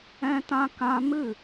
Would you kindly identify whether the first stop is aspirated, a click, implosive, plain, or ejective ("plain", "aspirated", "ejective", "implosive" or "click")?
plain